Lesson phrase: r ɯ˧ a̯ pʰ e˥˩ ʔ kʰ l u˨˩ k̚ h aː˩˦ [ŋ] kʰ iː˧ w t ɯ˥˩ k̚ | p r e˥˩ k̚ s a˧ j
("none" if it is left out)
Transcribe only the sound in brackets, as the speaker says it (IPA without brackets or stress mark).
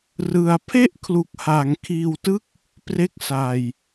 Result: ŋ